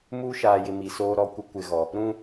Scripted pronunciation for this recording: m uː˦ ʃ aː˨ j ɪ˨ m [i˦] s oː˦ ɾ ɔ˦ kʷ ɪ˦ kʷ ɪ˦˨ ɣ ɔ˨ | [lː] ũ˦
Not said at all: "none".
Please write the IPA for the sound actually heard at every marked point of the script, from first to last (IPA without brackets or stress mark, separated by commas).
i˨, ɾ